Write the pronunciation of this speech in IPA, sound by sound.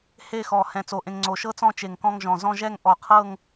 h e˥˧ x ɔ˧˩ h ɛ̃˧˩ t͡s o˧˩ ʔ ẽ˧ ŋ ŋ͡ǀ o˧˩ ʃ ɤ˥ t͡s ɔ̃˥˧ t͡ʃ e˧˩ ŋ k ɔ̃˥˧ ŋ ʒ ɔ̃˧˩ z ɔ̃˥˧ ʒ ɛ˥˧ ŋ ʔ ɔ˧˩ qʰ ɤ˥˧ ŋ

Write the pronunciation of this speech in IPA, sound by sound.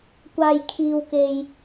kʷ aː˨ j kʰ iː˨ w k e˨ j

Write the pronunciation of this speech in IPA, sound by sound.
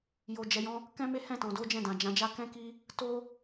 j o˨ d͡ʒ ɛ˨ j ɔ̃˧ | k ɛ̃˦ m e˦ h ɛ̃˦˨ t ɔ̃˨ d o˨˦ d͡ʒ ɛ̃˦˨ d ã˨ d͡ʒ ã˨˦ d͡ʒ a˦ k ɛ̃˦ k i˦ | t o˦

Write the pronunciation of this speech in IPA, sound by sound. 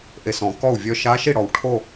ʔ e˨˩ s ɔ̃˧˩˧ k ɔ˥˩ u̯ vʲ œ˥˧ ʃ a˧˥ ʃ i˥˩ ɽ ɔ˨˩ w ʈʰ o˥˧

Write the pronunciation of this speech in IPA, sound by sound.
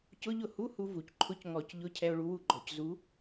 c ʊ˧˥˧ ʎ ʊ˥˩ h u˧˥˧ h u˧ v u˩ c ǃʰ ʊ˧˥˧ c ŋ ɔ˧˩˧ c ʎ ʊ˧˥˧ cʰ ɛ˧ o̯ ɭ u˧ w u˥˩ ɡ͡ǃ ɔ˧˩˧ c z u˨˥

